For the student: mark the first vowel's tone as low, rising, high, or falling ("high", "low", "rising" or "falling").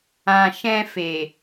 low